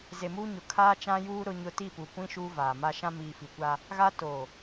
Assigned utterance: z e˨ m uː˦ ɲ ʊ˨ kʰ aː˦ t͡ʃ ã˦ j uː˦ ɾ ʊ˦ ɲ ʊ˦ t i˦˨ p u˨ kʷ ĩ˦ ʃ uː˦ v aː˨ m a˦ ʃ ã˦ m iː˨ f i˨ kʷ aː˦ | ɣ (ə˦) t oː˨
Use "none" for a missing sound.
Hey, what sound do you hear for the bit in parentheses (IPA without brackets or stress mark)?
a˦